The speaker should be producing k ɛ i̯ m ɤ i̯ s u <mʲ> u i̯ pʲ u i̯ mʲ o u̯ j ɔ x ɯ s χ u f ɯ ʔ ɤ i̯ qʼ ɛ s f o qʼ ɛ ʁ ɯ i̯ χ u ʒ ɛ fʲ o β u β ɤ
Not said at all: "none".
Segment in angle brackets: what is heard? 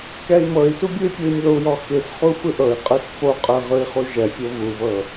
bʲ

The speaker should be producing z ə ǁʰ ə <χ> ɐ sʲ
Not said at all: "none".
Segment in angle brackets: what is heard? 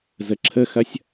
x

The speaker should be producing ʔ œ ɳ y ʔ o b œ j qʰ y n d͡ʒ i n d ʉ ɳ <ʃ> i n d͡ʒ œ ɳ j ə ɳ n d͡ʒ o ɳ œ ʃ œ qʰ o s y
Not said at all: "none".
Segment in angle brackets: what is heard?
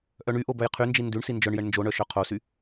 s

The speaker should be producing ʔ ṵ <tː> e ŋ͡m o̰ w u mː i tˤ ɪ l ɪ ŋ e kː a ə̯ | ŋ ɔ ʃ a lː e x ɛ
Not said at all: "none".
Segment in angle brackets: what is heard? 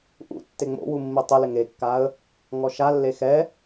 tː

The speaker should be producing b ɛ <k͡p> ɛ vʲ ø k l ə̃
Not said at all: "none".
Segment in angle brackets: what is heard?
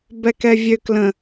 k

